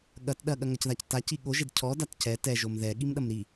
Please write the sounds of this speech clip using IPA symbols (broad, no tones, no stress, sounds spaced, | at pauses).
ɠ ɐ t ɗ ɐ ɠ ɐ ŋ ɐ c ð a c t a c i ɠ o ʒ e d cʰ ɔ d a t c ɛ t ɛ ʒ o m ð ɛ ɠ i m ɗ ɐ m ɾ i